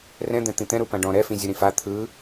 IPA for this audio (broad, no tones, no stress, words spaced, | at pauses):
rɛ̃d̪ɛ̃t̪ĩ t̪ɛ̃ ɾupãɖɔ̃ ɾɛfĩzʲɯ ɾĩfa t̪ʰɯ